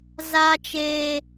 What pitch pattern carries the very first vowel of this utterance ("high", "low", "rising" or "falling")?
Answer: high